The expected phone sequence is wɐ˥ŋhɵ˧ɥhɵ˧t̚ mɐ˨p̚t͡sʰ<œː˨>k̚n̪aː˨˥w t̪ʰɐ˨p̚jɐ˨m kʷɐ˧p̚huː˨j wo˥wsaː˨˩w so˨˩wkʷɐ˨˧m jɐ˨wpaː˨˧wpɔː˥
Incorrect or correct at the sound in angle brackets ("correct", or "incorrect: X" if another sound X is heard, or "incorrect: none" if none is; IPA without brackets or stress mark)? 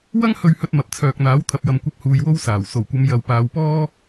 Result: correct